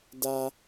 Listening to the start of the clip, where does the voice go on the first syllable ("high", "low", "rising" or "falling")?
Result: high